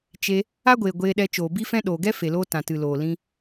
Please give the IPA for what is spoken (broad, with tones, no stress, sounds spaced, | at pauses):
t͡ʃ e˧ | a˦ ɡʷ eː˨ ɡʷ eː˧ ɗ ɛ˧ t͡ʃ oː˨ b i˦ f ɛ̃˦ ɗ oː˨ ɡ ɛ˦ f e˨ l oː˧ t ã˨ t ɨ˨ l oː˨ l ĩ˧